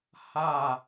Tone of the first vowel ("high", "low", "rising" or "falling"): falling